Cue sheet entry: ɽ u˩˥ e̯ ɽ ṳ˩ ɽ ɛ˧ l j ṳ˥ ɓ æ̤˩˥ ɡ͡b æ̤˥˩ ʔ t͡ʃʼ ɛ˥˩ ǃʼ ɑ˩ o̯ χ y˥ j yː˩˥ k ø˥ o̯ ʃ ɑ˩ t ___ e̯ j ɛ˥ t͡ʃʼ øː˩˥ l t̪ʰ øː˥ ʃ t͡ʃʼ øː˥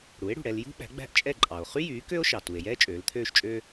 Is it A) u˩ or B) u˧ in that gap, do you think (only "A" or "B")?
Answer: A